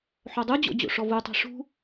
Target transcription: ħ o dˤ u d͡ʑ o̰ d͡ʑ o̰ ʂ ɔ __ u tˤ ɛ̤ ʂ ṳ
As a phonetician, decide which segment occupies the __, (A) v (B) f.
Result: A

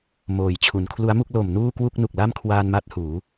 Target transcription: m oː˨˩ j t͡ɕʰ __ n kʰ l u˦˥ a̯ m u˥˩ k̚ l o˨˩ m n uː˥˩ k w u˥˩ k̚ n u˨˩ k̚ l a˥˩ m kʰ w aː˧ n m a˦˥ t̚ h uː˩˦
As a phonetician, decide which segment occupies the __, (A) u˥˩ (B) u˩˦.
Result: B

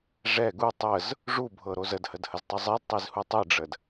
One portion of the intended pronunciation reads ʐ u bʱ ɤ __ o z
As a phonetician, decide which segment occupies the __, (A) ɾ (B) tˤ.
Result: A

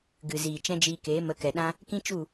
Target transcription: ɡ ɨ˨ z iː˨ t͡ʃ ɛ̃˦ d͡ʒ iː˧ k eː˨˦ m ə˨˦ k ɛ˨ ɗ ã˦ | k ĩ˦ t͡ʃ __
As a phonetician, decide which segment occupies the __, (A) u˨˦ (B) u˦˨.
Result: B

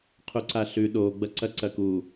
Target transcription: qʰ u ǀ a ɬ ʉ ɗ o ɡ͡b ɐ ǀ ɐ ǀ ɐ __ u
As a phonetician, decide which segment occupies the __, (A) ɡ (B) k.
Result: B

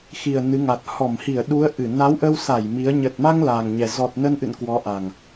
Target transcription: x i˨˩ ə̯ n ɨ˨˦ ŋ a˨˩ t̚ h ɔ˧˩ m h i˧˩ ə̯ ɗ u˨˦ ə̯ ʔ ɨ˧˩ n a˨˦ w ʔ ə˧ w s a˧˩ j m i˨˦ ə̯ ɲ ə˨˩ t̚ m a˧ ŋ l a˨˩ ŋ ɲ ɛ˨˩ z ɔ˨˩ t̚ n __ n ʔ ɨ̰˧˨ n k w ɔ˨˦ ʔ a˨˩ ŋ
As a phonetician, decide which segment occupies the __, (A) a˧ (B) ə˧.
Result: B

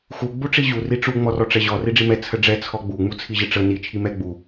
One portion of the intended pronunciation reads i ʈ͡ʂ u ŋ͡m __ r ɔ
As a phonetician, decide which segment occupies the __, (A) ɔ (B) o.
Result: A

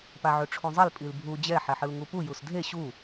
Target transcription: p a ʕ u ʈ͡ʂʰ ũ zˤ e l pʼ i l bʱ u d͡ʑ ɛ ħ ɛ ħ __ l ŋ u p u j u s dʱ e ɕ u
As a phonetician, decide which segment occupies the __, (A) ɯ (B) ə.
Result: A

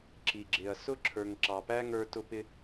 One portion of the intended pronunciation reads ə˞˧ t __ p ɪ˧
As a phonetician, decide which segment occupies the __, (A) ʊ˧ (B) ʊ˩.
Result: A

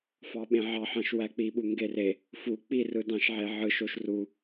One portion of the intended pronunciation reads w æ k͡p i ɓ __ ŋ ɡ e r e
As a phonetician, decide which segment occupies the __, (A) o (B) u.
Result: B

